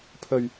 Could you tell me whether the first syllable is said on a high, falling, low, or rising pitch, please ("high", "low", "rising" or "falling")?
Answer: low